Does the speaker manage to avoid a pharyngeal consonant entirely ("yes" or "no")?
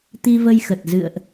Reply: yes